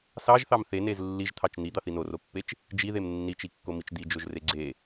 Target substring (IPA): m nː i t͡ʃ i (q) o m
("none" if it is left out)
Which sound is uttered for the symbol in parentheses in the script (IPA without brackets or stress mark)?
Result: kː